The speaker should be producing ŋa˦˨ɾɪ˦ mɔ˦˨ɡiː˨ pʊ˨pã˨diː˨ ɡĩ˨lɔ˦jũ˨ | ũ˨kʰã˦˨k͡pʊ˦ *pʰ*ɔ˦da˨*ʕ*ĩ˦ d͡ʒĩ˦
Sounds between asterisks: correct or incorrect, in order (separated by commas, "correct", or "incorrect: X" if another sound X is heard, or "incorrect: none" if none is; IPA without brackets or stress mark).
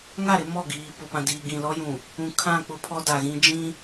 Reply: correct, incorrect: ɣ